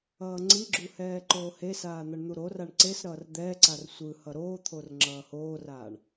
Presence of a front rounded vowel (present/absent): absent